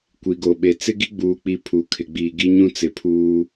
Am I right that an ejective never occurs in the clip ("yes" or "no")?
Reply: yes